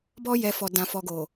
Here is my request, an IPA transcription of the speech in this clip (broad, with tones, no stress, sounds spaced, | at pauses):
b ɔ˧ j ɛ˨ f ɔ˨ d ã˨ f ɔ˨ ɡ o˨